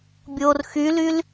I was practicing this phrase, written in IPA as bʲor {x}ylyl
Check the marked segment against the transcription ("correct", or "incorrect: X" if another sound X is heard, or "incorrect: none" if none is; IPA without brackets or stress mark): correct